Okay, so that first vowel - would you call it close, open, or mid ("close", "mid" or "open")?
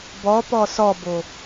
mid